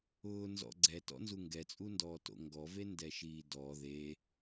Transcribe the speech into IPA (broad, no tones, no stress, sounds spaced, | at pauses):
ʊː n z ɔ̰ ɡ͡ǀ ɛ t ɔ̰ n z u ŋ ɡ ɛ t͡sʼ u n d ɔː t o̰ ŋ ɡ ɔ v e n d ɛ ʃ iː d ɔ ð e